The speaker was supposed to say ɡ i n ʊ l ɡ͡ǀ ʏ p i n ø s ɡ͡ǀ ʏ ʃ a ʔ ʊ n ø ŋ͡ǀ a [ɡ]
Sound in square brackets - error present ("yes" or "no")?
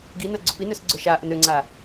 yes